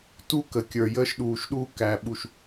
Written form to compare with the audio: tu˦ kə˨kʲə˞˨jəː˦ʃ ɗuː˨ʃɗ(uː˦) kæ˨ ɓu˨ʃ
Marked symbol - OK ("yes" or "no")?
yes